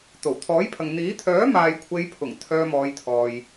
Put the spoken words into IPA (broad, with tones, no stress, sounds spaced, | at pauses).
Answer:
t̪ o˨˩ w t̪ʰ ɔː˨˥ j pʰ ɐ˨ ŋ n̪ iː˨˥ t̪ʰ œː˨˥ m aː˨ j kʷʰ e˨˧ j pʰ ʊ˨˩ ŋ t̪ʰ œː˧ m ɔː˨˧ j t̪ʰ ɔː˨ j